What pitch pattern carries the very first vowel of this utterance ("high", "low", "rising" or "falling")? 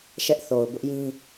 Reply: high